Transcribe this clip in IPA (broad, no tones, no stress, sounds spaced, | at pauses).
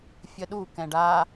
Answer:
fʲ ə ɗ u k ɛ̃ ɖ a